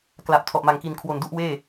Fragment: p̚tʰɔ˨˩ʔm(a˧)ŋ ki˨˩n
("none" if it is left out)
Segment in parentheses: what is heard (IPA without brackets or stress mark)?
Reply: a˨˩